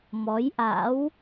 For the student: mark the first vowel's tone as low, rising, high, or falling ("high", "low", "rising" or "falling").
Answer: rising